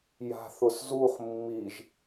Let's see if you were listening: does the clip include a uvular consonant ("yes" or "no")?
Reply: yes